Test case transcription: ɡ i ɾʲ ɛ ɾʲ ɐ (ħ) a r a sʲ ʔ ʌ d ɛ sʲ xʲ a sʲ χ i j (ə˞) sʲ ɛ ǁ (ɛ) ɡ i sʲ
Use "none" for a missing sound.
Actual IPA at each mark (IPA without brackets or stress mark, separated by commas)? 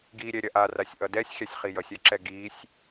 ʔ, ʌ, ɛ